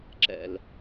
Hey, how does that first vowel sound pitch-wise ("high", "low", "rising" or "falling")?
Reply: low